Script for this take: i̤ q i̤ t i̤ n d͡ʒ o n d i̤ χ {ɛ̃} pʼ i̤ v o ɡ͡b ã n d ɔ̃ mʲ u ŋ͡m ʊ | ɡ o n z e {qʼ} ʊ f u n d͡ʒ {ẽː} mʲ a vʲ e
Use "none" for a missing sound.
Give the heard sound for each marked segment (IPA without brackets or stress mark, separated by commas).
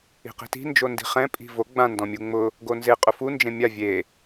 ɛ̃, qʼ, ẽ